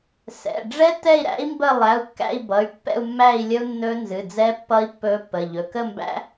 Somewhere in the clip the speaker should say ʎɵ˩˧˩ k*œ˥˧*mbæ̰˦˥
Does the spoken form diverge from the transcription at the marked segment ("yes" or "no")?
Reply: yes